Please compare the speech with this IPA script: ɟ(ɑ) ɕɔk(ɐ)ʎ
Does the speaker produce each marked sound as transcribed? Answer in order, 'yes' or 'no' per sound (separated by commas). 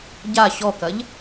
no, yes